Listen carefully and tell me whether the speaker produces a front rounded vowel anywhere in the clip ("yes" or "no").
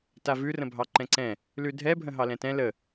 no